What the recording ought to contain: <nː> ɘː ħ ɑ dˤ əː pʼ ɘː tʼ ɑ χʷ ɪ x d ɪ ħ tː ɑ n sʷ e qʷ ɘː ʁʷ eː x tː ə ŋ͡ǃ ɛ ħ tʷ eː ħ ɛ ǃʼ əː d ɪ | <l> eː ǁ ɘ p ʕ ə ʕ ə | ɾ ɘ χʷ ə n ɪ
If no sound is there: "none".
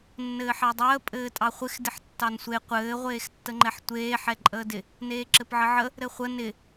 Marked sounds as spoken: nː, n

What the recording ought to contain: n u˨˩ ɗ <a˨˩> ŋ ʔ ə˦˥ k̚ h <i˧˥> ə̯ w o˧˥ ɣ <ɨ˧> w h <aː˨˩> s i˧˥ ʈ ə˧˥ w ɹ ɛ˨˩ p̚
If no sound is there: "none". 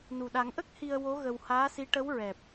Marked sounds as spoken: a˨˩˦, i˧, ə˧, aː˧˥

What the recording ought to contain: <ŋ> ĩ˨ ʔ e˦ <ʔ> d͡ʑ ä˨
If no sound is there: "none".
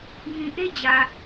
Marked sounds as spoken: ŋ, none

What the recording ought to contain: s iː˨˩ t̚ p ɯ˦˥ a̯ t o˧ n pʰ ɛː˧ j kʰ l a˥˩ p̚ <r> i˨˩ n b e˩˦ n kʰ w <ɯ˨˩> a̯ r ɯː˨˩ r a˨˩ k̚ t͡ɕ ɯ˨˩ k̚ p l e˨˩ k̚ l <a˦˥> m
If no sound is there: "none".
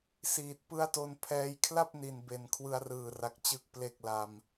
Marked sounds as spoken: n, ɯ˧, a˧

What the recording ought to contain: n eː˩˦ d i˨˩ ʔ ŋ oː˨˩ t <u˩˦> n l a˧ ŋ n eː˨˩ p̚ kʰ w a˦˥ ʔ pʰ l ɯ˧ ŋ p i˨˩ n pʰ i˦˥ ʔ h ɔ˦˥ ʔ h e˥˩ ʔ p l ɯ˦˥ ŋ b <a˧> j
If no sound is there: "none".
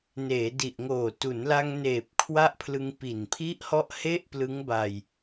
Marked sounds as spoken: u˩˦, a˧

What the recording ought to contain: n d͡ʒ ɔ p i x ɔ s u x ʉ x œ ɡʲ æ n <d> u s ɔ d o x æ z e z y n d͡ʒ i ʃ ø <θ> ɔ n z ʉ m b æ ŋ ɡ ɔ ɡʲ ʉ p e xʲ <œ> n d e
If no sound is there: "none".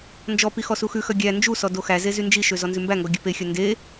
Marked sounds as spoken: d͡ʒ, z, œ

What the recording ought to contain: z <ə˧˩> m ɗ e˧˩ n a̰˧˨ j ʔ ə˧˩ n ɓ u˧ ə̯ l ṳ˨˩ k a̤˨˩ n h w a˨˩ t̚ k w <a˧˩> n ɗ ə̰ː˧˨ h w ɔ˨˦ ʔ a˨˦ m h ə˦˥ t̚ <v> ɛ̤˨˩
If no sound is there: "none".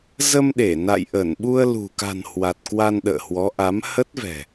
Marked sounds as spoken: ə˧, a˧, v

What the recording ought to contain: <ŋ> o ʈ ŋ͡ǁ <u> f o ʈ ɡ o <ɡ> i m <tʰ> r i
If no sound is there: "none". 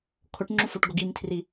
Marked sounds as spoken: kʰ, u, ɡ, tʰ

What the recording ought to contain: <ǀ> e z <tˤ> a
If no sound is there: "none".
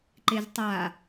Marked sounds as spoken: ǃ, tˤ

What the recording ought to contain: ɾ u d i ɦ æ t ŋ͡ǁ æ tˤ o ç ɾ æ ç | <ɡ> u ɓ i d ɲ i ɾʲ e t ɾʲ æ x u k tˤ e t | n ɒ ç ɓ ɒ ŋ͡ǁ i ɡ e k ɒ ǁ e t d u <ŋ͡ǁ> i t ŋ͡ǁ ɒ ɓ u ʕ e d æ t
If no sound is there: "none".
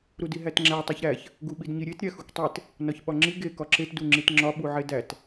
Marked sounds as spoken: ɡ, ŋ͡ǁ

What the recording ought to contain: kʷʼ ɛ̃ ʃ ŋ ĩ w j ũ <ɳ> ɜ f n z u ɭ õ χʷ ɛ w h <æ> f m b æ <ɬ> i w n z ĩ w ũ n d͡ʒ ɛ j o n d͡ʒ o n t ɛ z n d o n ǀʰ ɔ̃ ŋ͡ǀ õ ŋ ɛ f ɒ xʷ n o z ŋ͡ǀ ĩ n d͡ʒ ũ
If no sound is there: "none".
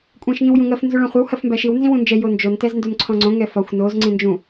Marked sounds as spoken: ŋ, ɜ, ʃ

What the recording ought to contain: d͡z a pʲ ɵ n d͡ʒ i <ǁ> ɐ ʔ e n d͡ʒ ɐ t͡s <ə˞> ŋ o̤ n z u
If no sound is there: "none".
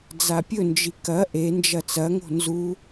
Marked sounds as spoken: k, ɐ

